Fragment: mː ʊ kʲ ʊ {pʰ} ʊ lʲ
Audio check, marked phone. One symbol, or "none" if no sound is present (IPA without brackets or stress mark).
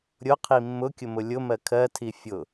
m